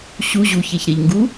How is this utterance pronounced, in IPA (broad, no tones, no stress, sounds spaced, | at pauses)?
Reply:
ɕ u ʑ u ç e ç ɾ e ʎ ŋ ɡ u